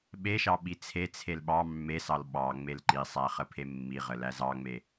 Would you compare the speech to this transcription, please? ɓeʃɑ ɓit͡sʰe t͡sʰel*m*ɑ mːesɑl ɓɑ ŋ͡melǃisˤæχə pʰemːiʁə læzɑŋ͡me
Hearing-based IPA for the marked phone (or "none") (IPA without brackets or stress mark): ɓ